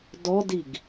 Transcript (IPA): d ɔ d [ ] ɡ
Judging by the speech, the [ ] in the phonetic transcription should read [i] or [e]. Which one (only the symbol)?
i